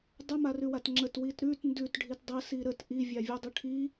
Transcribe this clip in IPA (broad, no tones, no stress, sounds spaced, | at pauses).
dˤ ə m a r ʉ w a t ŋ͡ǁ ə t w i t ɾ ʉ t n d ʉ t ɖʱ i t dˤ ə s i ɾ ə t ʔ i vʲ a vʲ ʉ dˤ ʉ ʈʰ i